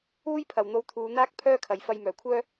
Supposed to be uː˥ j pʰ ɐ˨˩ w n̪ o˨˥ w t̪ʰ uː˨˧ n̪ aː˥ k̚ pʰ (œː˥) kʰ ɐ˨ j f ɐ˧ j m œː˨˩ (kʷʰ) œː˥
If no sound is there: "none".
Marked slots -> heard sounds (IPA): œː˥, kʷʰ

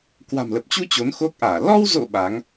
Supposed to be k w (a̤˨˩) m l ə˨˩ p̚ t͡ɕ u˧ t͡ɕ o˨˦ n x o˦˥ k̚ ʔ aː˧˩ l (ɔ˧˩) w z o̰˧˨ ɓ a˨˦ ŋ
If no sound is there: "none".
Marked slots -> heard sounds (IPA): a̤˨˩, ɔ˧

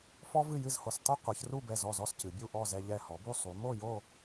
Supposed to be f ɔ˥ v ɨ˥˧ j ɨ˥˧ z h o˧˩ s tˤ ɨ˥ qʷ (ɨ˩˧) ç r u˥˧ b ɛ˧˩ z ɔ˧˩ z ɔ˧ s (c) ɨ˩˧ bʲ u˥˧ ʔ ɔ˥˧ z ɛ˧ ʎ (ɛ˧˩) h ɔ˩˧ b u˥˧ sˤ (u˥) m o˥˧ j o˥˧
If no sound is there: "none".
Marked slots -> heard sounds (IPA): ɨ˩˧, c, ɛ˧˩, u˩˧

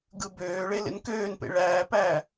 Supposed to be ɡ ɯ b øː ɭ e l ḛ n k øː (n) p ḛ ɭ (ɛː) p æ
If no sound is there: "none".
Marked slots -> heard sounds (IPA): n, æː

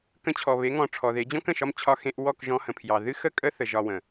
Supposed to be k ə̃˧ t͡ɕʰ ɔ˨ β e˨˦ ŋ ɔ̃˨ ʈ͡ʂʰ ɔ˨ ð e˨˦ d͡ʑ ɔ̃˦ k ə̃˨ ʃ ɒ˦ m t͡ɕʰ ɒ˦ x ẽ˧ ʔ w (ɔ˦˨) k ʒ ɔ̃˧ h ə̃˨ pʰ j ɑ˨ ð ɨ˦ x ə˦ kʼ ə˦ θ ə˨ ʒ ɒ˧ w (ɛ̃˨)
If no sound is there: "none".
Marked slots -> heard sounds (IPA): ɔ˦˨, ə̃˨

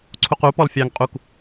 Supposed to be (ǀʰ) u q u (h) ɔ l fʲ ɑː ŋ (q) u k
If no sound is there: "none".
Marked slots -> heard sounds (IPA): ǀʰ, p, qʼ

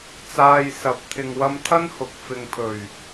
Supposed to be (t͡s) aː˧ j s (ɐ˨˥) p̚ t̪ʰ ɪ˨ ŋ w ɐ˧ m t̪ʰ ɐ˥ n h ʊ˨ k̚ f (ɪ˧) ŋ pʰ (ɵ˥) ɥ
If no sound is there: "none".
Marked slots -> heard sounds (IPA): t͡s, ɐ˨˥, ɪ˨, ɵ˨˩

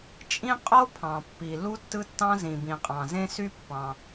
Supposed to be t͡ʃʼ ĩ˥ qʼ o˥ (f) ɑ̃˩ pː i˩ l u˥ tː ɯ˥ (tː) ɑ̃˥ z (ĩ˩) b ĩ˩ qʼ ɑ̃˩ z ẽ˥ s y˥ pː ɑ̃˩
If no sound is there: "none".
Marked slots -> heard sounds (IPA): pʰ, tː, ĩ˩

